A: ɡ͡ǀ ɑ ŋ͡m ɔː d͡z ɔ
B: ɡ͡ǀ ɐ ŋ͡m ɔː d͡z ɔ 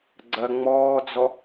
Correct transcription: B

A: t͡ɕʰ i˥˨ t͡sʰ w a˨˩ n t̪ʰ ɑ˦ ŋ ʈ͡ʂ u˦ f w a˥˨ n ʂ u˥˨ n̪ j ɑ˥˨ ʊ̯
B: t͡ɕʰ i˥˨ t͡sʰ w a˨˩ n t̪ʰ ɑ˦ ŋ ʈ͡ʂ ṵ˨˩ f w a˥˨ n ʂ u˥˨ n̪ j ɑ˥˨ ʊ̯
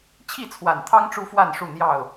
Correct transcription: A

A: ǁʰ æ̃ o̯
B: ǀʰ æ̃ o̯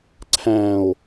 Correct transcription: B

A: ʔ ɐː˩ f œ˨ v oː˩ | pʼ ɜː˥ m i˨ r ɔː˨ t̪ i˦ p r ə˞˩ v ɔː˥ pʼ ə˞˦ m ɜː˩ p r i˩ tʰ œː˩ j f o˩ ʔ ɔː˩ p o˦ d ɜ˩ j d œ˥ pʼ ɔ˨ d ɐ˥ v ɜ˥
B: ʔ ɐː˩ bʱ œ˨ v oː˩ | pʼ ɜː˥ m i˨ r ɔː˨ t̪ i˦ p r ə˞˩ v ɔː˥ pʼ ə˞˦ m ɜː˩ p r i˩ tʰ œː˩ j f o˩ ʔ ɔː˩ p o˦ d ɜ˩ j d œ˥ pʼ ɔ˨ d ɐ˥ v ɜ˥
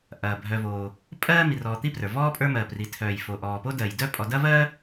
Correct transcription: B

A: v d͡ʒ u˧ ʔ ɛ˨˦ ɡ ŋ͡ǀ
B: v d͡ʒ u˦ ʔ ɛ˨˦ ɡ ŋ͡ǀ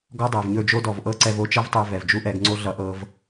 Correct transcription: B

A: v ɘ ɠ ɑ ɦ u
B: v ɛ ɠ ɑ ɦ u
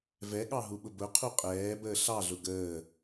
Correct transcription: B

